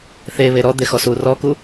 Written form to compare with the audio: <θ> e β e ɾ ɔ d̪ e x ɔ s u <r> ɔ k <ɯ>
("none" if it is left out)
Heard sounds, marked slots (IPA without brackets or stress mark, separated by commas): θ, r, u